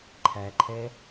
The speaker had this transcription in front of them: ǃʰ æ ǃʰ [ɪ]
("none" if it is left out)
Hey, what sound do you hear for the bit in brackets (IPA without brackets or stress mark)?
ɛ